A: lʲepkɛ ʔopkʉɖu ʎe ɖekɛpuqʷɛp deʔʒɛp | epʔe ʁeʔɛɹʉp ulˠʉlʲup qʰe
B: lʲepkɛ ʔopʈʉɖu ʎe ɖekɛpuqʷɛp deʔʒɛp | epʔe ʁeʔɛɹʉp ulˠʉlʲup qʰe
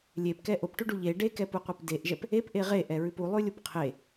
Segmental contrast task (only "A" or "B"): B